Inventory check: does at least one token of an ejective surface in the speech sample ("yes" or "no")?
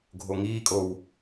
yes